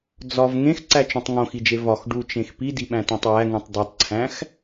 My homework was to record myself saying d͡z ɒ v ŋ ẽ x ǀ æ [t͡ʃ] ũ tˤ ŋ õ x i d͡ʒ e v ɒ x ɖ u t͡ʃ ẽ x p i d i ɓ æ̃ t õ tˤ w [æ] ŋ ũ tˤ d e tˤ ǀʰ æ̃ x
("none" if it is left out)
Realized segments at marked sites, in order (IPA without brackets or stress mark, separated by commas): t͡ʃ, æ